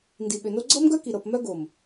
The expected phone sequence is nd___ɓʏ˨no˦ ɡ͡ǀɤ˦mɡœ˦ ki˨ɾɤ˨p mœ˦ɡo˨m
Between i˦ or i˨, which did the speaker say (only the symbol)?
i˨